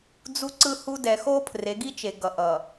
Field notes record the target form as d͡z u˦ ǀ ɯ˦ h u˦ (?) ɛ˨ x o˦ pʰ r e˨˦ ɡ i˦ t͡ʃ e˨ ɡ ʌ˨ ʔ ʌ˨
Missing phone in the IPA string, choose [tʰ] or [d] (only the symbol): d